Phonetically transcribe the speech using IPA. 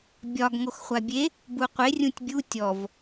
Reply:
bʲ ɒ ɡ ŋ o x χʷ a bʲ e | b u qʷ e rʲ ũ tʲ bʲ u tʲ ɔ v

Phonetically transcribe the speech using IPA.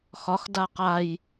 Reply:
x ɒ x d a q a j

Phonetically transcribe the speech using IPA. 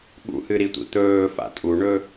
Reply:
ɠ ṵ h ɨ ɾ i tʷ ḭ t̪ ɵː f a̰ tʼ u ɳ ɵ

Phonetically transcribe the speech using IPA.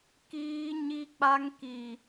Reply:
k iː˦ ɲ i˦ k͡p a˦ ŋ k i˨

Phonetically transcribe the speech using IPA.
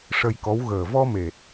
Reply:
ʂ ə˧ j k ɔ˧˥ w ɣ əː˨˩ v ɔ˧ m e˨˩ t̚

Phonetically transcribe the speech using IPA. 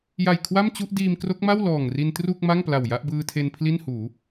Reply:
j a˨˩ j kʰ w a˥˩ m t͡ɕ u˥˩ ʔ d iː˧ m k r o˦˥ k̚ m a˥˩ w l ɔː˨˩ ŋ r i˧ n t r u˥˩ k̚ m a˥˩ ŋ p l a˨˩ w j a˥˩ ʔ b ɯː˧ tʰ e˧ n pʰ l i˥˩ n h uː˩˦

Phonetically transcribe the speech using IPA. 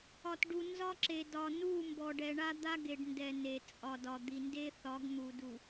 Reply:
ɒ˨ t ɖ u˨ n z ɒ˦ ǁ e˨ d ɒ˨ n u˦˨ m b ɔ˨ ɖ ɛ˨ ɳ a˦ d̪ a˦ ɡ e˨ ɖ n d ɛ˨ n e˨ t͡sʼ ɒ˨ d ɒ˨ d̪ i˨ n d e˦ θ ɒ˨˦ ɡ n̪ u˨ d u˨

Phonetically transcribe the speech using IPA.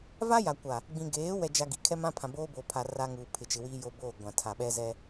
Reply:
v a˦ j a˨ kʷ a˨ | ɡ͡b ĩ˨ ɡ eː˨˦ w ɛ˦ d͡ʒ a˦ ɡ i˨ kʰ ɛ˦ m ã˦ pʰ ã˨ b oː˦ b oː˨ pʰ a˨ r a˦ ŋ uː˨ pʰ ɪ˨ t͡ʃ ɪ˨ w iː˦ j o˦ b oː˦˨ ɡʷ ã˨ tʰ a˨ ɓ ɛ˦ z ɛ˦

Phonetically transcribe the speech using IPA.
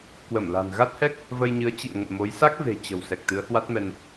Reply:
k w ə˧˩ m l a̤˨˩ n ɣ a˦˥ t̚ h ɛ˦˥ k̚ | v ə˧ j ɲ ɨ˨˦ ə̯ t͡ɕ ḭ˧˨ ə̯ ŋ ə̰˧˨ n m o˨˦ j s a˦˥ k̚ v e̤˨˩ t͡ɕ ə̤˨˩ w s ɛ˨˩ k̚ t̪ ɨ˨˦ ə̯ h w a˦˥ t̚ m ɛ˧ n

